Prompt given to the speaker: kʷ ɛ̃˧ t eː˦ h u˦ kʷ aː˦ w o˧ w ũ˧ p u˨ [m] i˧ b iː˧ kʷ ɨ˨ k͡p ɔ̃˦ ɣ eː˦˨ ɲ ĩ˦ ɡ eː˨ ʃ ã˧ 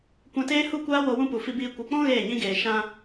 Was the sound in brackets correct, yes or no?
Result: no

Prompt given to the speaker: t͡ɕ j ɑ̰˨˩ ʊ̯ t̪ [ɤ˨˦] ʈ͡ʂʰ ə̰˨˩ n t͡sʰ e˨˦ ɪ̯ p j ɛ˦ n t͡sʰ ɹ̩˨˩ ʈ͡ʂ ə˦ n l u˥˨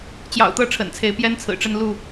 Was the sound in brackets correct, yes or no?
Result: no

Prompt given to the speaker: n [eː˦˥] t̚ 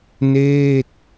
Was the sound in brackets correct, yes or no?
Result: no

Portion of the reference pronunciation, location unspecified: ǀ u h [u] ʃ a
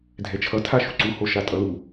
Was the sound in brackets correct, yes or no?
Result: no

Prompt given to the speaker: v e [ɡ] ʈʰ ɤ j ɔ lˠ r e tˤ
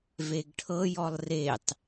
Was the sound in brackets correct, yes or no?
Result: yes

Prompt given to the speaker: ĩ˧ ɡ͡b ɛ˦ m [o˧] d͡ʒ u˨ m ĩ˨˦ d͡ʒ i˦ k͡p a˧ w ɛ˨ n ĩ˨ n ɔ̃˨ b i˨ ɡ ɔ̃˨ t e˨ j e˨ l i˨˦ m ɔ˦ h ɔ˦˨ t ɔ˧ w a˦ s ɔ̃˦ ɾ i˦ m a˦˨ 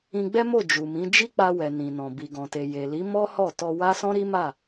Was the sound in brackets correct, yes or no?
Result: no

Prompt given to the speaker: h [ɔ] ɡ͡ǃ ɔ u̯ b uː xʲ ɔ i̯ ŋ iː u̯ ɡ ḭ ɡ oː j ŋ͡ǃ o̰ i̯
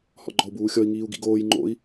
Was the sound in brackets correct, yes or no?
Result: no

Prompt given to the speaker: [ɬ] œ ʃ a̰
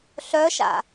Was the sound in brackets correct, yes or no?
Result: yes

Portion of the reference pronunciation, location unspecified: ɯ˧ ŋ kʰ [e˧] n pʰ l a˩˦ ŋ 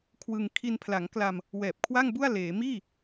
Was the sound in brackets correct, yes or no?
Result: no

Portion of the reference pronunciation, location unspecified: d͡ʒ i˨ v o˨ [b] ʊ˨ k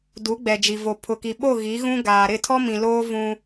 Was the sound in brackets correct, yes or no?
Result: no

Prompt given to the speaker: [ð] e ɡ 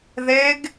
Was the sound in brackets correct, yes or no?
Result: yes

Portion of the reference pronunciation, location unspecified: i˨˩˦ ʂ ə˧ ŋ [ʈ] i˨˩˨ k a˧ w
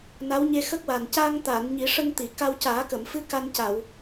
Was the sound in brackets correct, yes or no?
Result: no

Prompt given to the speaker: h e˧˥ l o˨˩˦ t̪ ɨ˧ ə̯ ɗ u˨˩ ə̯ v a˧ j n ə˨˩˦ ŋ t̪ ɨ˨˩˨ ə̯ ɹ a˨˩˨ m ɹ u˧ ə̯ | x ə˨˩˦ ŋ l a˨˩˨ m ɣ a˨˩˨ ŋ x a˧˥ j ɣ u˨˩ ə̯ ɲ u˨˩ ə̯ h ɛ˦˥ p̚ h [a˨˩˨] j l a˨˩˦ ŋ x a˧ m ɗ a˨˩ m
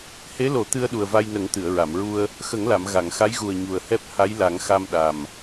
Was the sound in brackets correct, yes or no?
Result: no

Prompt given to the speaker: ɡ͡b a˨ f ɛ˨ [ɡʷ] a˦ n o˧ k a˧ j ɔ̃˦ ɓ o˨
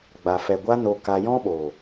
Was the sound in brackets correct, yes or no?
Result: yes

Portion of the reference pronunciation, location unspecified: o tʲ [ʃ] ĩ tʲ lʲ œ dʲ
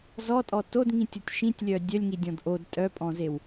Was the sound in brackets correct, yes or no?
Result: yes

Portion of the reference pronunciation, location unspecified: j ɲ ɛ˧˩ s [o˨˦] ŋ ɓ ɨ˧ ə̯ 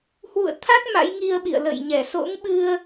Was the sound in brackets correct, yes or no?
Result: no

